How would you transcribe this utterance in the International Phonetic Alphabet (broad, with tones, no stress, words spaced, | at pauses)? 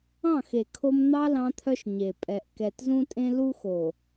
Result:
ɑ̃˦˨xe˨ kʰo˦m n̪ɑ˦ lɑ̃˦t̪ʰœ˦ʃ ɲe˨ pʼɛ˨ʔkɛ˨tzũ˦tʼẽ˦ lu˦xo˨